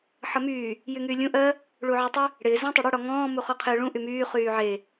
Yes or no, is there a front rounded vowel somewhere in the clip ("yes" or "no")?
yes